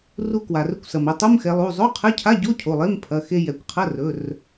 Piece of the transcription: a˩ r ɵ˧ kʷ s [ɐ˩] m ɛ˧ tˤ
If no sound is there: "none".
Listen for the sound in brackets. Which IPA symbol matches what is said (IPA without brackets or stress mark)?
ɐ˩